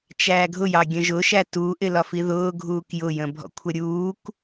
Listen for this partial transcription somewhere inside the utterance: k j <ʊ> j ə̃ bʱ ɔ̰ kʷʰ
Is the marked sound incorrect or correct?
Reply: correct